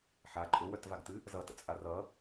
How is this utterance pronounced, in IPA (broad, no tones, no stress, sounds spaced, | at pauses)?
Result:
ħ a ǃʼ ʊ w œ t v a ɡ t ɨ | z ʌ t ə̰ t͡sʼ a r ʌ